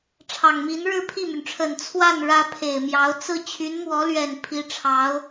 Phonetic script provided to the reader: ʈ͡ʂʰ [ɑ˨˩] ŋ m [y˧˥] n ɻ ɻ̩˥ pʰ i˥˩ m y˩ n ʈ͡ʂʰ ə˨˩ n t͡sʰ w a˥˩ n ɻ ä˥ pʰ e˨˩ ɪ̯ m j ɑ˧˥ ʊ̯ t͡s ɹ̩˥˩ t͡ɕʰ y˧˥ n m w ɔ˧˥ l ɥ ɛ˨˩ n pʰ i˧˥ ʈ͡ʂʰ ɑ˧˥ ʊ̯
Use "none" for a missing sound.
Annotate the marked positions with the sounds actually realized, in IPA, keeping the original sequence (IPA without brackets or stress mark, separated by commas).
ɑ˨˩, i˧˥